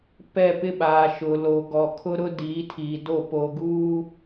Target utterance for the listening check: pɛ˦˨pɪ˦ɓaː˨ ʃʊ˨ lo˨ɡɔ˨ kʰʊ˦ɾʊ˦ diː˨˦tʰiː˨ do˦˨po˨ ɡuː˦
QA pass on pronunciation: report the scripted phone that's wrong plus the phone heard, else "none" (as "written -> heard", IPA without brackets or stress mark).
none